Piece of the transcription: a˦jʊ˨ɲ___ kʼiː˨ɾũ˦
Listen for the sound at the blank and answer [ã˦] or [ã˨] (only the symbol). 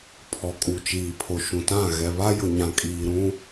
ã˨